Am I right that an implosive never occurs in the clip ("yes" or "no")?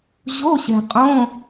yes